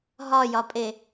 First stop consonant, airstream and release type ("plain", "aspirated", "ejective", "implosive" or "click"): ejective